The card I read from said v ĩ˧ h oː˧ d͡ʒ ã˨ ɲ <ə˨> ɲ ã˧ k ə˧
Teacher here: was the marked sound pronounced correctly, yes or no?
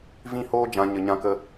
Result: yes